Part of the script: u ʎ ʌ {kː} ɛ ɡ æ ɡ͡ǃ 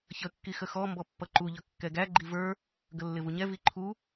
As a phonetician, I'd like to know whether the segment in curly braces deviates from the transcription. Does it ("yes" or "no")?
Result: no